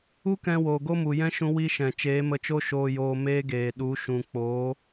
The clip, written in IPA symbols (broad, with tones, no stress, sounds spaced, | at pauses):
u˦ k ɛ̃˧ w oː˨ ɡ o˦ m u˨ j ɛ̃˦ ʃ ũ˧ w i˦ ʃ ɛ̃˨ t͡ʃ eː˨˦ m ə˧ t͡ʃ o˦ ʃ oː˧ j oː˧ m eː˦ ɡ eː˨ ɗ u˨˦ ʃ ũ˨ k͡p oː˨˦